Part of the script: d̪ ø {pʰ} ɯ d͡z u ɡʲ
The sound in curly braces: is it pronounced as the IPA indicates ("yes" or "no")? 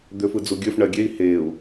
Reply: no